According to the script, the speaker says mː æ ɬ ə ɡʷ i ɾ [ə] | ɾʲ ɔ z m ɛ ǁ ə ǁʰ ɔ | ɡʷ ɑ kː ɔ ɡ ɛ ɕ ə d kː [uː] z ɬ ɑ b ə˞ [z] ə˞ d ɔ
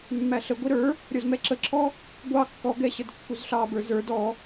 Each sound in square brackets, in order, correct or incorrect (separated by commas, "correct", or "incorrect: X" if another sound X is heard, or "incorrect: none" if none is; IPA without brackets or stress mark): incorrect: ə˞, incorrect: u, correct